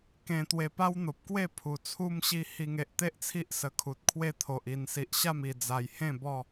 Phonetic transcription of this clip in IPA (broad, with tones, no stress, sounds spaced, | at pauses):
k ẽ˧ t̪ w e˧ p a˦ w n̪ o˨ p̚ k w e˥˧ pʰ u˨˩ t͡sʰ u˧ m ɕ i˧ h i˧ ŋ e˨ ʔ t̪ e˦ ʔ t͡sʰ i˦ ʔ s ə˧ kʰ u˨ t̚ kʰ w e˥˧ t̪ʰ o˨ ʔ i˨˩ n s i˨ ʔ ɕ a˥˧ m i˨˩ d͡z a˨˩ j h ẽ˥˧ b ɔ˥˧